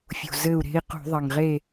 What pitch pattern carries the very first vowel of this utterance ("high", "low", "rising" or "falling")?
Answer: low